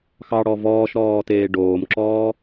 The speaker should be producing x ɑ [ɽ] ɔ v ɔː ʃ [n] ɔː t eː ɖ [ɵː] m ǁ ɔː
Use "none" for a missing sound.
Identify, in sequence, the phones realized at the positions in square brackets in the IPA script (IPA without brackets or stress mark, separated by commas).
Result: ɽ, ɾ, oː